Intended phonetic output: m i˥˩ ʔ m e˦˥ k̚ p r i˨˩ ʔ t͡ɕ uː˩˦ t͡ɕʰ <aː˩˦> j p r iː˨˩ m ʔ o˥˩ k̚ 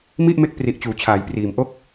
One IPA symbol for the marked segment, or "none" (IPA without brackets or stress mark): aː˩˦